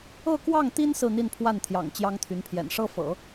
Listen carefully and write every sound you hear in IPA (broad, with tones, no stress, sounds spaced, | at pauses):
ɤ˥˧ k w ɑ˥˩ ŋ t̪ i˥ n s ɹ̩˥˧ n̪ i˥˧ n pʰ w a˥˩ n t̪ʰ j ɑ̰˨˩ ŋ t͡ɕ j ɑ˥ ŋ t̪ʰ y˧˥ n pʰ j ɛ̰˨˩ n ʂ ɤ˥ f ɤ̰˨˩˦